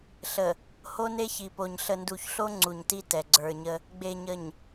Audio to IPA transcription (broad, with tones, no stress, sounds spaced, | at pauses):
ɬ ə˨ | h o˦ n e˦ ç i˨ p o˨ ɲ ɬ ə˨ n d u˨ ç ɬ o˦ ŋ͡ǀ u˨ ɲ t i˦ t ɛ˨ ɡ͡ǀ ə˞˨ ɲ ə˦ | ɡ͡b e˨ ɲ ə˨ ɲ